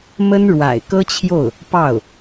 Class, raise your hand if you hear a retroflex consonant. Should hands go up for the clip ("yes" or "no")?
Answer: yes